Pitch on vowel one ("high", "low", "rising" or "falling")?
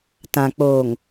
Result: low